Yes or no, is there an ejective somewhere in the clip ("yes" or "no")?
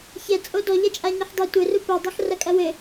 yes